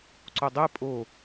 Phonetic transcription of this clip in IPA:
ǀ o dˤ e pʼ o

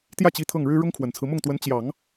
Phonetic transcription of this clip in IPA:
t̪ j ä˥˩ t͡ɕ i˧˥ t̪ʰ ɤ˥˩ ŋ ɻ ɻ̩˥ ɻ ʊ˥ ŋ kʰ w ə˨˩ n t͡sʰ ɹ̩˦ m ʊ˥˩ ŋ t̪ w ə˧˥ n t͡ɕ j ɑ˨˩˦ ŋ

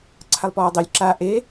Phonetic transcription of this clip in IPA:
ǀʰ a lˠ p ɔː dˤ e lʲ ǁ a ʔ e

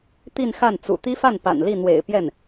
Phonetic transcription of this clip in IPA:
t̪ i˥˧ n x a˥˩ n t͡s ṵ˨˩ t̪ i˥ f a˥˩ n p a̰˨˩ n l i˥˩ n̪ w ḛ˨˩ ɪ̯ p j ɛ˥˩ n

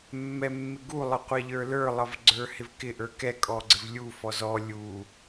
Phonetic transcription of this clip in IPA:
mː ɛ mː ɪ ɡ u lˠ ə qʷ æ ʎ ə˞ l ə˞ lˠ ʌ v ɡ͡ǀ ə˞ h ɪ v k ɪ ʔ ə˞ k ɛ kʼ ɔ ɡ͡ǀ ɪ v lʲ u f ɔ z ɔ lʲ u

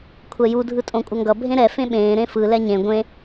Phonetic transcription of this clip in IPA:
kʷʰ ɛ j u dʱ ɯ tʼ õ kʷʼ ʌ ŋ ɡ ʌ bʱ ẽ ɾ ɛ f ẽ ɓ ẽː ɾ ẽ f ɯ l ɛ ɲ ẽ ɡʷ ẽ

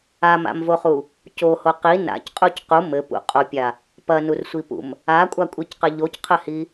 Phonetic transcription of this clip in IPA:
a m a̰ m v o χ u | c o h o q i n a̰ c qʼ u c q u m ɘ p ṵ qʼ o pʲ a | p ɐ n u r sʷ i p ṵ m | a kʷʼ a kʷʼ i c q ɘ ʎ o c qʰ ɘ h i

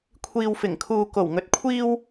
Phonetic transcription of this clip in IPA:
kʷʰ iː˨ w f ɪ˨˩ ŋ kʰ uː˨ k o˨˩ w ŋ ɵ˨ t̚ kʷʰ iː˧ w

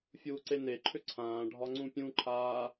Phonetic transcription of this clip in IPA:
fʲ uː ǀ e n e ǃʰ ʏ ǀʰ ãː ɖʱ ɒ ŋ͡ǀ ũ pʲ ũ ǃʰ aː

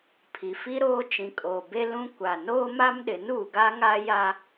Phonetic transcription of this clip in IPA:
pʰ i˨ f i˦ ɾ oː˦ t͡ʃ ĩ˨ kʼ oː˨ b e˦ l ũ˦ kʷ a˨ n oː˦ m a˦ m ɗ ɪ˨˦ n uː˨ ɡ a˦ ŋ a˦ j a˦

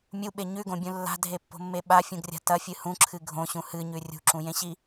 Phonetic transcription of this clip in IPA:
mʲ u ɓ e ɲ ʉ ɡ õ bʲ ũ lː a̤ dʱ e pː o̤ mː e ɓ a fʲ ũ ɡ rʲ a̤ t ɐ fʲ ɨ h ũ ǁʰ ɨ ɡʱ õ ɕ ũ h ɨ ɲ ʉ rʲ ṳ ǁ ũ j ẽ ɕ i

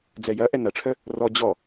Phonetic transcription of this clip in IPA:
d͡z ɛ j ɐ ʔ ɛ n ɐ ʈ͡ʂʰ œ | r ɔ d͡ʑ ɔ

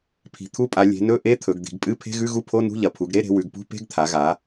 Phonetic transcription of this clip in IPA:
pʰ i̤˩˧ t̪ʰ u˧˥˧ pʼ a˩˧ lʲ e̤˩˧ n ɵ˧˥˧ ʔ e˧˥˧ t̪ʰ ɵ˩˧ ɡ d̪ i̤˩˧ ɡ pʼ ɨ˧˥˧ pʰ e̤˧˥˧ ɣ ʉ˧˥˧ ɣ u˧˥˧ pʰ o˧˥˧ n ṳ˧˥˧ ʎ ɐ˩˧ pʰ u˩˧ ɡ ɾ e˧˥˧ ɾ e̤˩˧ w ʉ˩˧ ɡ p ṳ˧˥˧ p e̤˧˥˧ ɡ t̪ʰ a˩˧ ɣ a˩˧

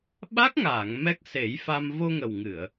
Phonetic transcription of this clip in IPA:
ɓ a˦˥ k̚ ŋ aː˨˩˨ ŋ m ɛ˦˥ k̚ s e˨˩˦ j f a˧ m v o˧ ŋ ə˨˩ w ŋ ɨ˨˩˨ ə̯

